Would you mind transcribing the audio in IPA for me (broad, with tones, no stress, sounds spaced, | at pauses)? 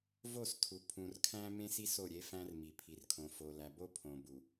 v o˦˨ s tʰ u˨ pʰ ũ˨ r kʰ æ̃˦ m ẽ˦ s i˦ s o˦˨ ɾʲ e˦ f æ̃˦ r m i˨ pʰ i˨ r kʰ õ˨ f o˨ l æ˨ b o˦ pʰ õ˨ b u˨